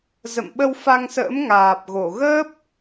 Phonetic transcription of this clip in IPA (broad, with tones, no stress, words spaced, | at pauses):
zə̰˧˨mɓə˧wfa˧ŋsə̰ː˧˥m ŋaː˨˩p̚ ɣo˧˩ɣəː˦˥p̚